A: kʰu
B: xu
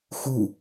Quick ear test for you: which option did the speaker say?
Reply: B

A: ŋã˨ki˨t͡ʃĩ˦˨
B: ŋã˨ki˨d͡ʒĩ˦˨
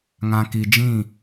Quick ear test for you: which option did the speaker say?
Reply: B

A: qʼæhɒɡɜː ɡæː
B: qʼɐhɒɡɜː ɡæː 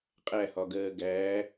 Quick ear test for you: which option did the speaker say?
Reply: A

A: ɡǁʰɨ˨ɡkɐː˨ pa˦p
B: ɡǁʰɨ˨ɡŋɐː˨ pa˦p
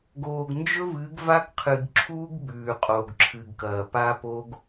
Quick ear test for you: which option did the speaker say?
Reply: A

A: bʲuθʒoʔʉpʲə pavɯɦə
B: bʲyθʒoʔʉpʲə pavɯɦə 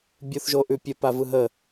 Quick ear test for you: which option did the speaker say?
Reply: A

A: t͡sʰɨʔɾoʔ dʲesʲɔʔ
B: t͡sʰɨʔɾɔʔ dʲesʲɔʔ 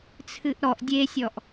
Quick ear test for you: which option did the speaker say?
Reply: B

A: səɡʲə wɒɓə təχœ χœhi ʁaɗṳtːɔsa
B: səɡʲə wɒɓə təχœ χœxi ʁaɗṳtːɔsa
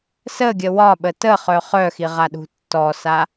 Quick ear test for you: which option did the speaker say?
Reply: B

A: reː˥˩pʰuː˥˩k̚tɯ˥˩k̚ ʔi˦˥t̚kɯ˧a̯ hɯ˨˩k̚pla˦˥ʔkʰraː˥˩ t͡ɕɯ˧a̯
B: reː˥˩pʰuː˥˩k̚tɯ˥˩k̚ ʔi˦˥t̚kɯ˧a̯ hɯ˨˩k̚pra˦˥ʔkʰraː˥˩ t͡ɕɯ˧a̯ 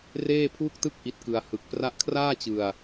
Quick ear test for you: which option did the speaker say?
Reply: B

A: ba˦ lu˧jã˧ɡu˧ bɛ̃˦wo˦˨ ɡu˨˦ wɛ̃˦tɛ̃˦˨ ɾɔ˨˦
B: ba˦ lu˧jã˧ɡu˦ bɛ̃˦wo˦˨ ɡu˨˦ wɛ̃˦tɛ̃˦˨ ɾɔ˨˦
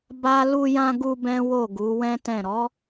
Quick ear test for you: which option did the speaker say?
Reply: A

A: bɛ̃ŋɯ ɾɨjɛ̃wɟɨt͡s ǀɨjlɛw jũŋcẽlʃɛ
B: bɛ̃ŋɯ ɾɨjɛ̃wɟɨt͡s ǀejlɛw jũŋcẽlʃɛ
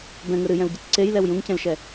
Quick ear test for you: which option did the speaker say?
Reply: B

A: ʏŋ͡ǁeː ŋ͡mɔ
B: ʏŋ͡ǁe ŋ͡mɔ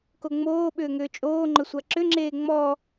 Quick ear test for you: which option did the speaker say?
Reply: A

